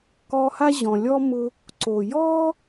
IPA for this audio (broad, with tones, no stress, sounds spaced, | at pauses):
k ɔ˦ h a˥ ʑ ɔ̃˨ lʲ ɔ˥ m ʊ˦ | ǀ o˩ j ɔ˥